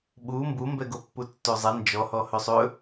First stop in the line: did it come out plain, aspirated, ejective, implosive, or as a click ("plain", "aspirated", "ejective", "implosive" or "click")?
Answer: implosive